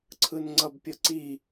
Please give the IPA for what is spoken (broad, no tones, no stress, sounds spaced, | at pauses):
ǀʰ ɯ n ŋ͡ǀ ʌ b pʲ ʌ ǀ i